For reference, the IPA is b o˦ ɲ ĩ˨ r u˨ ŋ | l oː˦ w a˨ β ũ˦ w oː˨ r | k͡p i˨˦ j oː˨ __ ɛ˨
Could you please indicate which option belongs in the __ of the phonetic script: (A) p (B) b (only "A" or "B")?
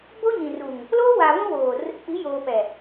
A